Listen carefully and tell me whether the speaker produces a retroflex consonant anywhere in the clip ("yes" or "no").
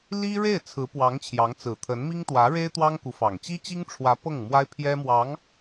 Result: yes